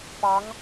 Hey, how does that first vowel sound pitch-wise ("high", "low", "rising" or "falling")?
rising